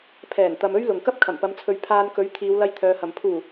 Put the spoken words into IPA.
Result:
pʰ ɛː˨˩ n t̪ ɐ˧ m ɵ˥ ɥ l ʊ˨ ŋ k ɐ˥ p̚ kʰ ɐ˨˩ m p ɐ˨˧ m t͡sʰ ɵ˨˧ ɥ pʰ aː˧ n k ɵ˨˥ ɥ t̪ʰ iː˨˧ w l ɐ˧ j t̪ʰ œː˨ h ɐ˨˩ m pʰ uː˨˩

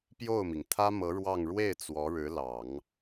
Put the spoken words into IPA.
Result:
p j o˥˩ ʊ̯ m i˩ ŋ t̪ʰ ä˥ m ɤ˧˥ ɻ w ɑ˥˧ ŋ ɻ w e˥˩ ɪ̯ t͡s w ɔ˧˥ ɻ ɻ̩˧˥ l ɑ˨˩˦ ŋ

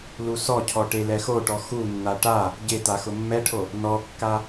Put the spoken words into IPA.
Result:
l u s ɔ cʰ ɔ ʈ e l ɛ x o ʈ ɔ x u nː a ʈ a | ɟ ɪ t a x ʊ mː ɛ ʈʰ o | n ɔ kː a

